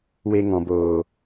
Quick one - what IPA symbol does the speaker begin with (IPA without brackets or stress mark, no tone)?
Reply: w